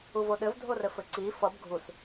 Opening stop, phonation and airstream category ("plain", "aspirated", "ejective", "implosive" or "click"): implosive